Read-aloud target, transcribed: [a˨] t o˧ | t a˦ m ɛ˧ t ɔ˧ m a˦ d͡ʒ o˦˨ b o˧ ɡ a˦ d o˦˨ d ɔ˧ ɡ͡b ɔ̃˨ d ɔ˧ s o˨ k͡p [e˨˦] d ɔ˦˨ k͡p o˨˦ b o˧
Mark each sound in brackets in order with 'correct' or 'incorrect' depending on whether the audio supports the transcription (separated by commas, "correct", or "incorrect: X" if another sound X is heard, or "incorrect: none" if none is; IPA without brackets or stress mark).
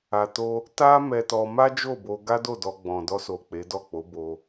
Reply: correct, correct